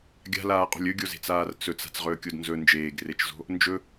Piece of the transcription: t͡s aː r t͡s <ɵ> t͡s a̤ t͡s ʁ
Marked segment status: correct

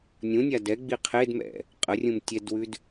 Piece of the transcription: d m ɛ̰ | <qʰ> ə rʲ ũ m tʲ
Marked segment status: incorrect: qʼ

